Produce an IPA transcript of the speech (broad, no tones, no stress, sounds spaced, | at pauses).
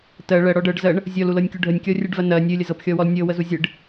t ɜ ɭ ɜ ɽ ɔ ɖ ɤ ɖ z ɜ ɳ | zʲ ɔ l u l ɤ nʲ kʲ u ɖʱ ə nʲ kʲ ɔ rʲ ɨ ɖ v ɜ n ɜ nʲ ɨ lʲ ə z ɤ p xʲ ɔ w ɔ l nʲ ɤ w ə z u zʲ ɨ ɖ